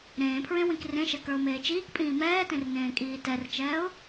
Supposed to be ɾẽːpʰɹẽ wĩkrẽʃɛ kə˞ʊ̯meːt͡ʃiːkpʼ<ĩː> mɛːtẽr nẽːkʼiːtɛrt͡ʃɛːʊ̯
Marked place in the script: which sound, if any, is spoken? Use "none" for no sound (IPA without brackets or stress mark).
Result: ĩː